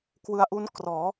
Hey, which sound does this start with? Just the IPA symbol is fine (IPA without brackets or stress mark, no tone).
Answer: k